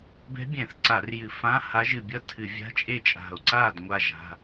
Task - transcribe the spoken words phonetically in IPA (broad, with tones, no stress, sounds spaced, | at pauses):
b ɛ̤˧˥ bʲ ɛ̃˧˩˧ θ ǀ a˧˩˧ r j ɨ˧˩˧ f ã˧˥˧ h a˧˥ ʒ ɨ˧˩ bʲ ʌ˥˧ tʰ ɨ˧˩˧ vʲ a̤˧˥˧ t͡ʃʼ e˥˩ t͡ʃʼ a̤˧˩ o̯ ǀ a˥˩ d ŋʷ a˥˧ ʒ a̤˧˥˧